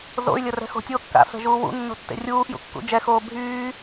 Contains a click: no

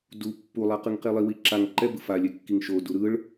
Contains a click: yes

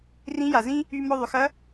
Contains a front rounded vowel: yes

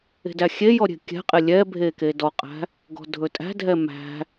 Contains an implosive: no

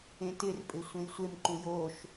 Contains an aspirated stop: no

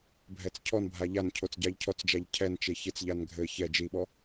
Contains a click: no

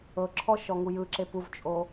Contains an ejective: yes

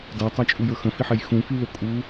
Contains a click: no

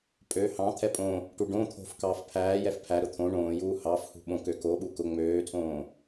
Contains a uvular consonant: no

